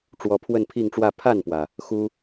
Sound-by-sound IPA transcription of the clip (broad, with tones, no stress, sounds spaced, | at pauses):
ʈ͡ʂ w ɔ˧˥ pʰ w ə˥˧ n pʰ i˥˧ ŋ ʈ͡ʂ w ä˥˧ pʰ a˥˩ n p w ä˩ | x u˥